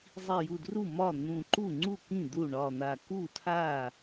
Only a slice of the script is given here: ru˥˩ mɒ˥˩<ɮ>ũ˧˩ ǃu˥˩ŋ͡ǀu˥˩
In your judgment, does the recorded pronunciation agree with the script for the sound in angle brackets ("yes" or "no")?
no